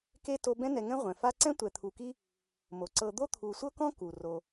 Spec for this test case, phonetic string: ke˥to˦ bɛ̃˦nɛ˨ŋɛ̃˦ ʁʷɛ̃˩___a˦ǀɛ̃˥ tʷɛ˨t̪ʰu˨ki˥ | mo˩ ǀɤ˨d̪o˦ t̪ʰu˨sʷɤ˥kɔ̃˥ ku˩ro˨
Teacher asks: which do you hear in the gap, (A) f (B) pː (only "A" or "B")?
A